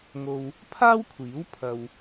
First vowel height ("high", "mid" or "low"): mid